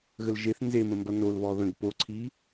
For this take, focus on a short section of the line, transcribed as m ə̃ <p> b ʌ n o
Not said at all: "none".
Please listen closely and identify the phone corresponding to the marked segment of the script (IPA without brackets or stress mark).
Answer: m